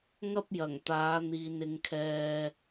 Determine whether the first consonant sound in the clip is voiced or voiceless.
voiced